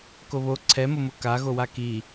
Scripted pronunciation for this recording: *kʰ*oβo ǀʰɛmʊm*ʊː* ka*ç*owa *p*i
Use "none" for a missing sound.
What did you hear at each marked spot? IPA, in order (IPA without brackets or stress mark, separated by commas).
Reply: k, ʊ, ɣ, k